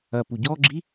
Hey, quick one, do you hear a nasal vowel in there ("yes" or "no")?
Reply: no